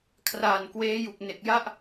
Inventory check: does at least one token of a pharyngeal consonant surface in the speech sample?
no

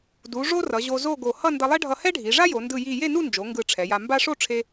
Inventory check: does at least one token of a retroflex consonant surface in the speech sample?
yes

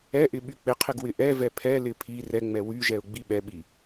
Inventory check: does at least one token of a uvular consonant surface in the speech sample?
yes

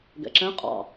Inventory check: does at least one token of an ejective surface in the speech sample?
yes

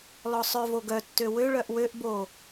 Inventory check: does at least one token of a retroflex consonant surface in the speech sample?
yes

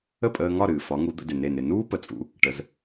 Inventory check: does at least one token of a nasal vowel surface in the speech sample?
no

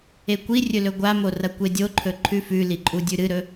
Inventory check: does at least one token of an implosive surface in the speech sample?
no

